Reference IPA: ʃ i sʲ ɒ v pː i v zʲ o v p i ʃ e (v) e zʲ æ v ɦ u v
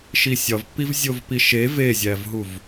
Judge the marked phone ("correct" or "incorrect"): correct